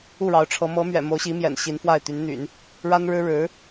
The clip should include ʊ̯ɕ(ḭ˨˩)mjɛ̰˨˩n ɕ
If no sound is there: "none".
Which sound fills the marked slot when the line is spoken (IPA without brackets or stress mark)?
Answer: i˧˥